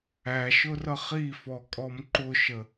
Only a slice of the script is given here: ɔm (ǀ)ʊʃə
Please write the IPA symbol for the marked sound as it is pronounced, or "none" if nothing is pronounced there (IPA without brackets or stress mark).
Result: ǃ